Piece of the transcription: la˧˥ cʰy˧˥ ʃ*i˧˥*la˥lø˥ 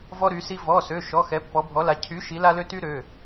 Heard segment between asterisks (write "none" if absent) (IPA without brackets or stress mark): i˧˥